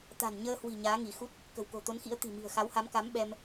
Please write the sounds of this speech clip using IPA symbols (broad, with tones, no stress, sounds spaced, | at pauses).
t̪ a̤˨˩ n ɲ əː˧ h w i̤˨˩ ɲ aː˨˦ ŋ i˧˩ x u˦˥ t̚ | k ə̤˨˩ w k o̤˨˩ t̪ o˨˦ n x ḭ˧˥ ə̯ t̪ i̤˨˩ m i̤˨˩ ə̯ x a˨˦ w h a˨˦ m k a˨˦ m ɓ ɛ˧ m